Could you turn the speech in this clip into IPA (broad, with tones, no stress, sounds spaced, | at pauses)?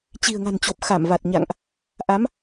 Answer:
t͡ɕ i̤˨˩ ə̯ ŋ a̤˨˩ n t͡ɕ o˨˩ p̚ x a˧˩ m v a˨˩ t̚ ɲ a̰˧˨ ŋ ʔ | ʔ a˨˦ m